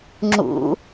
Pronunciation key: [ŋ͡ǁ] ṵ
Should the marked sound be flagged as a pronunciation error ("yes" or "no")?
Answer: no